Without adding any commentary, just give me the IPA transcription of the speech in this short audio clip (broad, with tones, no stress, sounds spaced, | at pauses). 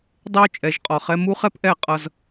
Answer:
dˤ ɛ˦ o̯ t͡ʃʼ ɛ˨˦ ʒ qʼ ɒ˨ χ ɛ˧ m u˦ χ ɛ˦ p ʔ ɛ˦˨ qʼ ʌ˧ z